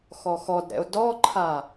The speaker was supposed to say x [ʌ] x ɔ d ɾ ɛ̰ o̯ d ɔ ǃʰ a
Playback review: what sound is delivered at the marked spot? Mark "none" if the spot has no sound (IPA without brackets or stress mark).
ɔ